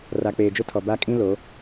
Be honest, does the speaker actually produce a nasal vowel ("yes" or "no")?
yes